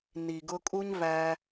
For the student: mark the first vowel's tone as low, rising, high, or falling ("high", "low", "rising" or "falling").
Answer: low